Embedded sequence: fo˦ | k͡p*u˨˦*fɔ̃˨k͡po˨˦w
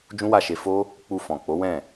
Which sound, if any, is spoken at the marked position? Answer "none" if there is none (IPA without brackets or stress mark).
u˧